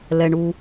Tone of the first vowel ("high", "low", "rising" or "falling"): low